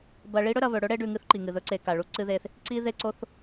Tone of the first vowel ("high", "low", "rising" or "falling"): low